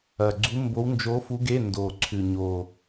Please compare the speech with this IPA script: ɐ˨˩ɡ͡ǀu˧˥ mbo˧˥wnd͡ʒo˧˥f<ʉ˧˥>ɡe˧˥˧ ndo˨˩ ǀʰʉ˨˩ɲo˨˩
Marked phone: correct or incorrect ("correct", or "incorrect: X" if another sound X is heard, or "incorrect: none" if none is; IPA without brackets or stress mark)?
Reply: incorrect: u˧˥